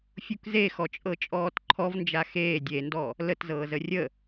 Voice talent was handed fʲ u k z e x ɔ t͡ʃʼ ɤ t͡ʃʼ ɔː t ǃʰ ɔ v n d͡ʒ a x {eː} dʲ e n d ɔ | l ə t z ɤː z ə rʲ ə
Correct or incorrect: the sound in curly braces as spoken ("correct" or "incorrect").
correct